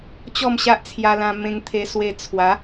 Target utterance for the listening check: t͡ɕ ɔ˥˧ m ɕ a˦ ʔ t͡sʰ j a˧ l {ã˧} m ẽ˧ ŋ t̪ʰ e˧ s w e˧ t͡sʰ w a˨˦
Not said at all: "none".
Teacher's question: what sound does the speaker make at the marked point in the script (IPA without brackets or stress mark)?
ã˧